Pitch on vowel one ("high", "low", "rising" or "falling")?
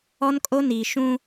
high